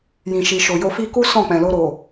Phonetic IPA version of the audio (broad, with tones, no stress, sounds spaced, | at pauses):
j ĩ˨ ʃ i˨ ʃ o˨ j o˧ f i˦ k u˦ s ɔ̃˦˨ k͡p ɛ̃˨ l o˧ ɾ o˨